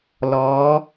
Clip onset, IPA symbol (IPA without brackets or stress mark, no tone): l